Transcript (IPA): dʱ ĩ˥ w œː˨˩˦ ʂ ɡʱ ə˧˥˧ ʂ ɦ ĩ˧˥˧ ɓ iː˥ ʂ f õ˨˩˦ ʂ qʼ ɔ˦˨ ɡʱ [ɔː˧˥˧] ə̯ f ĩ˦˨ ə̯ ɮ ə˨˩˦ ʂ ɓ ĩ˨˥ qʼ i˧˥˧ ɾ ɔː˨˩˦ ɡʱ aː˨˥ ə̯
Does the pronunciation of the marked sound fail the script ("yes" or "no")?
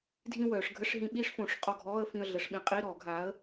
no